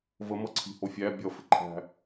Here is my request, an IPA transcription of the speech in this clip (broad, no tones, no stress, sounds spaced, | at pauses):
v ə m ʌ ǀʰ i̤ h o fʲ æ bʲ ʌ f ɪ ǃʰ æ̤